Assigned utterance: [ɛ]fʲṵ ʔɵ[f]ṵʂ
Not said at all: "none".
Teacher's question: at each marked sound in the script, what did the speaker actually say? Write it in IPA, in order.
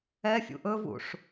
ɛ, v

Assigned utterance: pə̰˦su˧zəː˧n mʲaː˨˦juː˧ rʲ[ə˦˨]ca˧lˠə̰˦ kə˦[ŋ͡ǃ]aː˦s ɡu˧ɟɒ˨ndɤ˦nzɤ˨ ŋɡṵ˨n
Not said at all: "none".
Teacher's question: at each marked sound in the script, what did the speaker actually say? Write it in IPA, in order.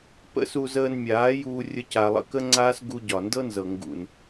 ə˦, ŋ͡ǀ

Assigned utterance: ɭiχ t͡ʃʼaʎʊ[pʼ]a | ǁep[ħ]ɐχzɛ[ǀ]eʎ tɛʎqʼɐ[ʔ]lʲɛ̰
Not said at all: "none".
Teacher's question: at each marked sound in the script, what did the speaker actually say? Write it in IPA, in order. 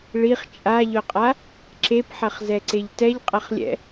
qʼ, ħ, ǀ, χ

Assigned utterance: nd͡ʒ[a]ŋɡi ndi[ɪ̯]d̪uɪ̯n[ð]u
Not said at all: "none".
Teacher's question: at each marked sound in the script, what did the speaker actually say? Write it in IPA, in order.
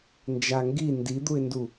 a, none, d

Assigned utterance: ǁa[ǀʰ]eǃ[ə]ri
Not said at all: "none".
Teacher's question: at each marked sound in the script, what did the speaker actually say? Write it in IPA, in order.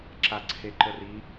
ǀʰ, ə

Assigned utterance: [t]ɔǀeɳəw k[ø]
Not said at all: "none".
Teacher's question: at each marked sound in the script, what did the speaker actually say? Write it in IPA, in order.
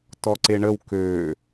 t, ø

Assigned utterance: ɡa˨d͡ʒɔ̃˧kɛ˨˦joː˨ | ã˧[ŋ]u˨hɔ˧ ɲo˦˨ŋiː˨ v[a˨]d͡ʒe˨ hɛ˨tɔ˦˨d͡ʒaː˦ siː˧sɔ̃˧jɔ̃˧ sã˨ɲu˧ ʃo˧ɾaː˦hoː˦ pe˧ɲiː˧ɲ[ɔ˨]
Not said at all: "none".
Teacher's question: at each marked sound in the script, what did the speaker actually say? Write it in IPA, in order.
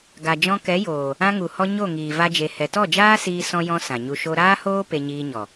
ŋ, a˧, ɔ˨

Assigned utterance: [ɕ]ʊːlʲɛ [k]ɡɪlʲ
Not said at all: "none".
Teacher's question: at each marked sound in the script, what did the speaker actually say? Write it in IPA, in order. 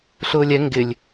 ɬ, ŋ

